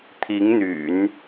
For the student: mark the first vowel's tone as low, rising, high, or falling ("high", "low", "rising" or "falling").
rising